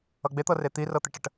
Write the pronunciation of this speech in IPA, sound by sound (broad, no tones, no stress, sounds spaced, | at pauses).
ʌ ɡ͡b e t̪ ɤ r e t̪ i r ɤ t̪ e ʈ ə ʈ